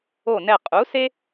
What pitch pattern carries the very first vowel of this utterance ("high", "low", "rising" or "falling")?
falling